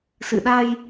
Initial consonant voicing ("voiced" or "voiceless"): voiceless